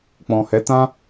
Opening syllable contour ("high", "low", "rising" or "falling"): low